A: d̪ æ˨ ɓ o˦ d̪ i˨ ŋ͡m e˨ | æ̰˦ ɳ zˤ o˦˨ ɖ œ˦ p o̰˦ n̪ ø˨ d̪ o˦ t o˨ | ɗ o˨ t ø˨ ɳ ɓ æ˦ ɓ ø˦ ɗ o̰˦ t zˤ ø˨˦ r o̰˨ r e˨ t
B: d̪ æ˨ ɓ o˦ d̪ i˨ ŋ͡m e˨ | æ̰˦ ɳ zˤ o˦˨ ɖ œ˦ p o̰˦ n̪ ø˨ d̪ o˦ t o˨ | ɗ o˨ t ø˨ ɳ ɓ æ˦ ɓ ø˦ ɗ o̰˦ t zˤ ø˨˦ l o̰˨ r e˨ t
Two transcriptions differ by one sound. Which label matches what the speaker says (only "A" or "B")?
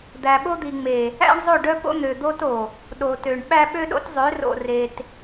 A